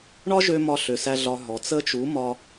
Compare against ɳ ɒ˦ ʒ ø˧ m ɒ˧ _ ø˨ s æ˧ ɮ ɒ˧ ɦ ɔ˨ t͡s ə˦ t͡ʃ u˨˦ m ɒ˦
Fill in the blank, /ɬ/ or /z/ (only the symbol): ɬ